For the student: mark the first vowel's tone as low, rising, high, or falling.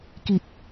low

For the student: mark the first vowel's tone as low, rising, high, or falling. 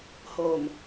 low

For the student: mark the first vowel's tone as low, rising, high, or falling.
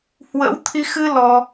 rising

